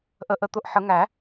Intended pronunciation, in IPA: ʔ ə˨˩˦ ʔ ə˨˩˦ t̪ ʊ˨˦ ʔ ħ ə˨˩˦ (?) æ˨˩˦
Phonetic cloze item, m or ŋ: ŋ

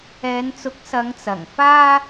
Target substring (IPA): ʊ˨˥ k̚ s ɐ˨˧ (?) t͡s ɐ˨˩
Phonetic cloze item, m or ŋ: ŋ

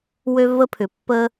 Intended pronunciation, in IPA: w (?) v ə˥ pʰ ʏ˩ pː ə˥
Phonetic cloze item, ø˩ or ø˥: ø˥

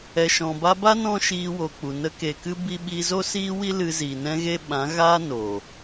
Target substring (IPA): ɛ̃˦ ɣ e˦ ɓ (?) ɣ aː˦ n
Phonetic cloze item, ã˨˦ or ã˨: ã˨˦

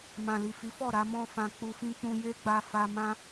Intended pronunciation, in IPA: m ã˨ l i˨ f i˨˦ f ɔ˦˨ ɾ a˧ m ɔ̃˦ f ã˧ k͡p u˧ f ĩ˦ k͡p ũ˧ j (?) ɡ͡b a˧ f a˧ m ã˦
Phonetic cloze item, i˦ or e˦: e˦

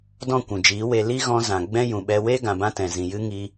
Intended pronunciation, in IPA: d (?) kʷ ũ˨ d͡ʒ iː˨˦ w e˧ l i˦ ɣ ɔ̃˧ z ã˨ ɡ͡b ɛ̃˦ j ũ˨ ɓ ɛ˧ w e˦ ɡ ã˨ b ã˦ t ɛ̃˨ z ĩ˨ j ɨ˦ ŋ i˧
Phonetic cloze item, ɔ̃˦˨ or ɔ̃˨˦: ɔ̃˦˨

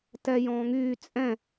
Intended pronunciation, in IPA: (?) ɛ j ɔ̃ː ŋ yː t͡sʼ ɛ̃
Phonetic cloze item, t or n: t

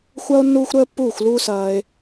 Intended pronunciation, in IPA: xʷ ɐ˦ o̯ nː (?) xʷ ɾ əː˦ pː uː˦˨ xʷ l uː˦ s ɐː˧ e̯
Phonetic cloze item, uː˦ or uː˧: uː˦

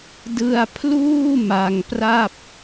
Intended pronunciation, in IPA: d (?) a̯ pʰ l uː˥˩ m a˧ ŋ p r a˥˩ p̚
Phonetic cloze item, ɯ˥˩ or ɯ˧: ɯ˧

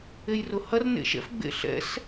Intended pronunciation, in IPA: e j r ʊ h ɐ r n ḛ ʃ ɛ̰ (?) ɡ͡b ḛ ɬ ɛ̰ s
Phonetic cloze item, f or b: f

